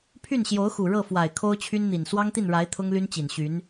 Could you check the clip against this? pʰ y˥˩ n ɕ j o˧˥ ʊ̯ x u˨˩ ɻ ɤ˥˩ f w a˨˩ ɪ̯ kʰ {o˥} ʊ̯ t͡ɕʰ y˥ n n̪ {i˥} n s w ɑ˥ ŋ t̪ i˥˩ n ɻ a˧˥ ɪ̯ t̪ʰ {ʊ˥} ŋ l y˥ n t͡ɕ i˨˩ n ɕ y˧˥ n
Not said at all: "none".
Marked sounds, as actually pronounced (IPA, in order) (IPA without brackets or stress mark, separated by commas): o˥, i˨˩, ʊ˥